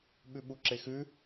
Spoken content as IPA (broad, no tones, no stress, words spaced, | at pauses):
ɓʉɓuǁexʉ